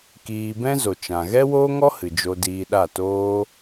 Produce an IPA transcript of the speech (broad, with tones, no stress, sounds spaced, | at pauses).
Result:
k iː˧ b ɛ̃˦ z o˨ t͡ʃ ã˨ ɣ ɛ˦ w oː˦ ŋ ɔ˦ h ɨ˨ d͡ʒ o˧ d iː˧ ɗ a˦˨ t oː˦